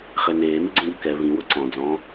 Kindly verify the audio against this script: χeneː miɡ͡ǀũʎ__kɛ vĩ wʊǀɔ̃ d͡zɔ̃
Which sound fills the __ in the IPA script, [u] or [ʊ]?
ʊ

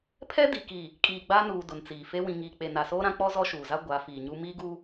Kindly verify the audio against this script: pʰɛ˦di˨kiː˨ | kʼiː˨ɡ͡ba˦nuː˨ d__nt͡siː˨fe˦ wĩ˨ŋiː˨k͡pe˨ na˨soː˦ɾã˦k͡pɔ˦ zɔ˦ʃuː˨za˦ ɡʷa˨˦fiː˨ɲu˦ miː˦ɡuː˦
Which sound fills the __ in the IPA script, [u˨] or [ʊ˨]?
ʊ˨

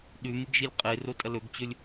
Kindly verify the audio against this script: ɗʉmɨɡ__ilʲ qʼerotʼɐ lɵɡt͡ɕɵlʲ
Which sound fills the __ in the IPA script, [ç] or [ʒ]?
ʒ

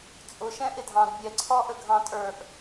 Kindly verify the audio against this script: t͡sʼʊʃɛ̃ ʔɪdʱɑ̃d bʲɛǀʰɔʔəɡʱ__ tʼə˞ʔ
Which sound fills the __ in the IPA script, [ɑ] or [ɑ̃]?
ɑ̃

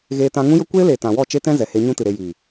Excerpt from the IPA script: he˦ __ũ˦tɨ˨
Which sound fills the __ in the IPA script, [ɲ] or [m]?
ɲ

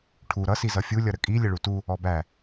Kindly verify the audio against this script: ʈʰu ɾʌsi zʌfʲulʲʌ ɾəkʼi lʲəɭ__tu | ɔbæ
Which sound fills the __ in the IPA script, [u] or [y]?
u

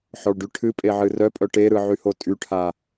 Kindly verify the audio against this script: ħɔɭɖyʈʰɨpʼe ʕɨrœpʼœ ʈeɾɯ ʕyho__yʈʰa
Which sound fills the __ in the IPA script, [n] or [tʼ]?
tʼ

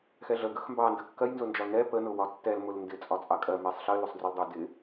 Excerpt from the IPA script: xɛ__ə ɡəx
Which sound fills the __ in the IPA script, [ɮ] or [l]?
ɮ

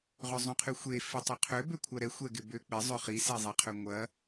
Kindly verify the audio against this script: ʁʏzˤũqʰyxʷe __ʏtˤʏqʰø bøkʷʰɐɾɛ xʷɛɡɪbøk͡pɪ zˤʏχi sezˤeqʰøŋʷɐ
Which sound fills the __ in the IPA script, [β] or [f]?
f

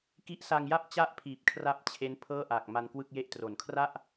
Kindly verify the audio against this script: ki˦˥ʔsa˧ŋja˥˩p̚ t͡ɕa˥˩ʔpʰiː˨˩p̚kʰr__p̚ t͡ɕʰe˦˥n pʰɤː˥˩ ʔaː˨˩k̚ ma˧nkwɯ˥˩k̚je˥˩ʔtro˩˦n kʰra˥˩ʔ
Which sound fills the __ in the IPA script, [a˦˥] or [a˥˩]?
a˦˥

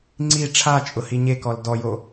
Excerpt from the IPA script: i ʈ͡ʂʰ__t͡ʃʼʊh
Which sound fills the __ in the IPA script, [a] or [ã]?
a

